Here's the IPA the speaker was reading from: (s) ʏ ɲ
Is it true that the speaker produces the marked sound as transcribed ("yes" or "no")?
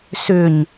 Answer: yes